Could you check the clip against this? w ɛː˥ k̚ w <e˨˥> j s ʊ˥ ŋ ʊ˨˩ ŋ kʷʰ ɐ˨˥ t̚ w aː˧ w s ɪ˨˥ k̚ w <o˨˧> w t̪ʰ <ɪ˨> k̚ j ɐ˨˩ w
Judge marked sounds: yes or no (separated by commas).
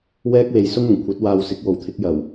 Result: no, yes, no